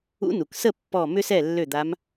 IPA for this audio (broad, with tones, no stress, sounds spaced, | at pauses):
ṵ˧˥ n u˩ k s ə˥˩ pː ɔ˧˩ m ʏ˥ s ɛ˥˩ lː ø˥˩ d̪ a˧˥ m